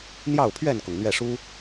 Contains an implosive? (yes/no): no